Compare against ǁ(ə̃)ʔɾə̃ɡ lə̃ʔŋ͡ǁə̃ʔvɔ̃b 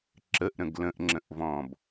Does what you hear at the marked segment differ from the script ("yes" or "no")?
yes